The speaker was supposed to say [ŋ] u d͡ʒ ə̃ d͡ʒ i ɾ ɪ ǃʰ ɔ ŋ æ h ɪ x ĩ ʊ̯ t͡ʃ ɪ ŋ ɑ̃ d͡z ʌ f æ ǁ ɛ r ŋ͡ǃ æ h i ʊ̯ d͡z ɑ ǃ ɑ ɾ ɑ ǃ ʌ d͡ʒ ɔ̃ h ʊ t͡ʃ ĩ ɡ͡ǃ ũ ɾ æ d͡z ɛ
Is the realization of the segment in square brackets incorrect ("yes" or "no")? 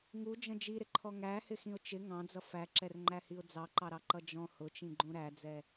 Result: no